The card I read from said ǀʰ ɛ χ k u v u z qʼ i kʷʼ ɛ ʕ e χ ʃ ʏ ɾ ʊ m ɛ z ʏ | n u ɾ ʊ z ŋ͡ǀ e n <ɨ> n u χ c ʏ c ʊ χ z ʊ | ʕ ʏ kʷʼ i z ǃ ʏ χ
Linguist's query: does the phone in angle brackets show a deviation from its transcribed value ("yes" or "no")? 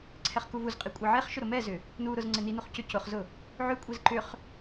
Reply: yes